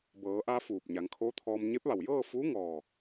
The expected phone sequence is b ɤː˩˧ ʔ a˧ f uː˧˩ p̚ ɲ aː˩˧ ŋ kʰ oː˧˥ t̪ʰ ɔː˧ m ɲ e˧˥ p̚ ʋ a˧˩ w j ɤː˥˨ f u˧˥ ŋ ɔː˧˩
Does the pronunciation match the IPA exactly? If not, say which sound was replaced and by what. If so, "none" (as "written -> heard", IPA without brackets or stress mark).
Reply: aː˩˧ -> a˩˧